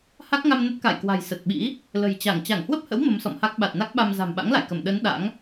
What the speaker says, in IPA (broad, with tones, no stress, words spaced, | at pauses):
ha˦˥k̚ŋa˧mnə˦˥t̚ ka̰˧˨jkwa̤˨˩j sə˨˩t̚ɓḭ˧˥ | lə̤˨˩jt͡ɕa˧˩ŋ t͡ɕa˧˩ŋhwə˦˥p̚hə̰˧˥w mə˨˦msɔ̰˧˨mha˦˥k̚ ɓa˨˩t̚ na˦˥k̚ɓa˧m za̤˨˩mɓa̰˧˥ŋla̰˧˨jkə˧˩m ɗə˨˦n ɗa̰˧˥ŋ